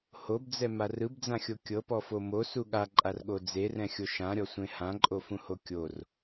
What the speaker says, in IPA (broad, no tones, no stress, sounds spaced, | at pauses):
h o b d͡z ɛ m a r ɯ b d͡z ã xʲ o kʲ ɤ p ɔ f o m o s u ɠ a ǃʼ a r ɠ o d͡z e r ɛ̃ xʲ o ʃ ã ɾʲ ɔ sʷ ẽ h ã ǃʼ o f ũ h o kʲ o r